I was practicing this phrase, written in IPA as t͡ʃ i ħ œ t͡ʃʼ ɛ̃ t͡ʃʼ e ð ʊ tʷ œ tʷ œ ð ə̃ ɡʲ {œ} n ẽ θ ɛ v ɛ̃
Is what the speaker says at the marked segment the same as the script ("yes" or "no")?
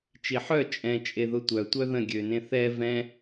no